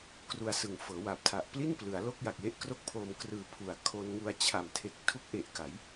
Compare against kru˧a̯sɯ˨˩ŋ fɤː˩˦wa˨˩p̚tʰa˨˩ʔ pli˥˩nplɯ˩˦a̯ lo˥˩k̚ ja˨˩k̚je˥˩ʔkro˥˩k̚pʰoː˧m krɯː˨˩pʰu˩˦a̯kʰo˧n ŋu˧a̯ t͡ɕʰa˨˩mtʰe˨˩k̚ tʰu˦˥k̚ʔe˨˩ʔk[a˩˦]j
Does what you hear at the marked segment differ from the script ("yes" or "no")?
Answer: no